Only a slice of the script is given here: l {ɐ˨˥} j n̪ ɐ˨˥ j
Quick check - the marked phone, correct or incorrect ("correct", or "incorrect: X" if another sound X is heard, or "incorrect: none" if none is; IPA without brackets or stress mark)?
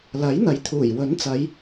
correct